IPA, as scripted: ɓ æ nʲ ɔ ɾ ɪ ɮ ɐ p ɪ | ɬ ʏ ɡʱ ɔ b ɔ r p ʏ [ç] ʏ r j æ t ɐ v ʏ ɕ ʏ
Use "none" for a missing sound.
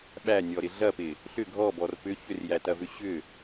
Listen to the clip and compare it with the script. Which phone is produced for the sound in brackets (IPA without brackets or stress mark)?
ç